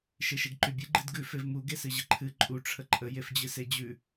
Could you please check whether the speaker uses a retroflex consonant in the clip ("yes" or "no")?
yes